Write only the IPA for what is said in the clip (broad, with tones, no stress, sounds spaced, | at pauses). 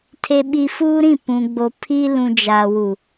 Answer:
tʰ e˨ ɓ i˨ f uː˦ ɾ ĩ˦˨ p ũ˨ ɡ͡b o˨ pʰ i˦ l ũ˨ d͡ʒ a˨ w u˨